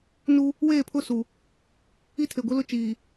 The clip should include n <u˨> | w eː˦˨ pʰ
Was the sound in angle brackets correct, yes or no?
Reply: no